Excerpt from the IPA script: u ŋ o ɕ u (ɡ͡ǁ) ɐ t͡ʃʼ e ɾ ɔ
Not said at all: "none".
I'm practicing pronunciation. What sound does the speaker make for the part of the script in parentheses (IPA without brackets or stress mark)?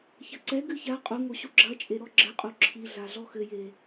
ɡ͡ǁ